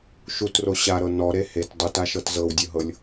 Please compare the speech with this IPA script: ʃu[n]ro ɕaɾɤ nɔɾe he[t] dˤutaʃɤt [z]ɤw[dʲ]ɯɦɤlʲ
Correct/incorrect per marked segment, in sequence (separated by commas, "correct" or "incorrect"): incorrect, correct, correct, correct